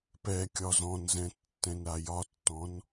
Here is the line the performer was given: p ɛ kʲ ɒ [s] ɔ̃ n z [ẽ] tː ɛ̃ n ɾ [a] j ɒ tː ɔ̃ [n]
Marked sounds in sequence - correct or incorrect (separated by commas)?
incorrect, incorrect, correct, correct